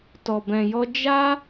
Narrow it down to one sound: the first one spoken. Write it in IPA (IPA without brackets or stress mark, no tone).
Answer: t